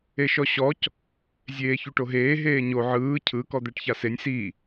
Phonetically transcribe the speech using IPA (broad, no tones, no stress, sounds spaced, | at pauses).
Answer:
e ʃ ɔ ɕ ɔ c | zʲ eː ç u ʈ o ɦ eː ɦ eː ɲ o ʕ ɯː cʰ ɯ k ɔ d̪ ɛ ʈ ç a s e nʲ s i